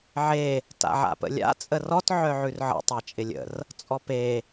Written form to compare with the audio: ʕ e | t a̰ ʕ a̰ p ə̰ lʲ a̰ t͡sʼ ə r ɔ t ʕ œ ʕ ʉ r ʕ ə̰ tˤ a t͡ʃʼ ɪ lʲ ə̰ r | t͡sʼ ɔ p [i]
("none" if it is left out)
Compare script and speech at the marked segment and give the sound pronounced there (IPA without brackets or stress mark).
e